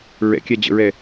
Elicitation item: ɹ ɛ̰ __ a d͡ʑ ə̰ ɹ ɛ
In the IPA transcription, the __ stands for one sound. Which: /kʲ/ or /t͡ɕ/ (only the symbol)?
kʲ